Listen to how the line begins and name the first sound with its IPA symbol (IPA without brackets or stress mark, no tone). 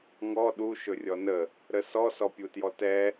ŋ